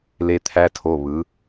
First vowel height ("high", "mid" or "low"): mid